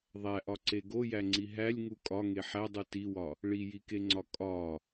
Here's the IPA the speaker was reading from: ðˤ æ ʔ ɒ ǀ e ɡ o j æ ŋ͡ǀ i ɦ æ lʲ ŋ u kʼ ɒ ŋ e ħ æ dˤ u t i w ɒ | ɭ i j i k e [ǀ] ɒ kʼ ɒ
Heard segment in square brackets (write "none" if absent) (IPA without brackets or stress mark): ŋ͡ǀ